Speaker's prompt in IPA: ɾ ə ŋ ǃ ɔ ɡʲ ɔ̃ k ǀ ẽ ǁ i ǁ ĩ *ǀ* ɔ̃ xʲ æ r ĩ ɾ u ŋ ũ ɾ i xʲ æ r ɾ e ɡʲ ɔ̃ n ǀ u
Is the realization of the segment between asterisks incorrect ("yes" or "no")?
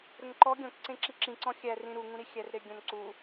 no